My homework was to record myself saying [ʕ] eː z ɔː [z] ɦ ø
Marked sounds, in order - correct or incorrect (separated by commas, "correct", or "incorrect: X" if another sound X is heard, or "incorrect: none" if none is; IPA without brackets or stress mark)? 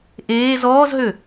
incorrect: ʔ, correct